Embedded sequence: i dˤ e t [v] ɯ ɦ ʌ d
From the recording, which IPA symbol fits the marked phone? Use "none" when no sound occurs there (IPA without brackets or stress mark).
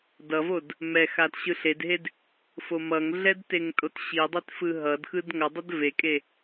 f